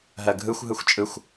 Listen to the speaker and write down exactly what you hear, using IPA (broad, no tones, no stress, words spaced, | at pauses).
ɦɜɡʱɯxʷ ɦɯxʷt͡ʃʼɯxʷ